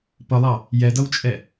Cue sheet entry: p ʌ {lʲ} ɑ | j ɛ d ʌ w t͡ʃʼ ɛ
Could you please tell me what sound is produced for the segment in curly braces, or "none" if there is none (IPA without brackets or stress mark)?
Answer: lˠ